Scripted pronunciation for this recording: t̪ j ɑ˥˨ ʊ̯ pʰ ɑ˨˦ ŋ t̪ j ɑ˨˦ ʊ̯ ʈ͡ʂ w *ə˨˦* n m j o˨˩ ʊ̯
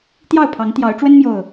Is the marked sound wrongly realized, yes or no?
yes